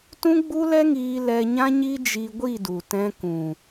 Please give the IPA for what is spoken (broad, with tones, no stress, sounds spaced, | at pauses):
t ũ˦ ɡ͡b u˦ l ɛ˦ ŋ iː˧ l ɛ˧ ɲ ã˦ ɲ i˦ d͡ʒ i˧ ɡʷ i˦˨ d u˨ t ɛ̃˧ k ũ˨